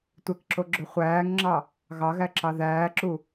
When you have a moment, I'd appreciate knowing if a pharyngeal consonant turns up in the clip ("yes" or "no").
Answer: no